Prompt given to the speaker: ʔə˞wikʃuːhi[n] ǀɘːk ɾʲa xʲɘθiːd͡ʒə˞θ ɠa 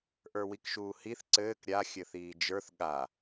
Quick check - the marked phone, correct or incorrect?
incorrect